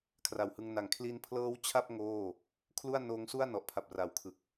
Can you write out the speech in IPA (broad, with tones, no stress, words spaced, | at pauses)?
kʰra˨˩whɯ˧ŋna˨˩ŋ kʰli˧npʰlɤː˦˥w t͡ɕʰa˥˩p̚ ŋoː˥˩ | kʰlu˥˩a̯noː˦˥ŋsu˥˩a̯ nɔ˨˩ʔpʰa˨˩p̚ra˨˩wkʰɯ˨˩k̚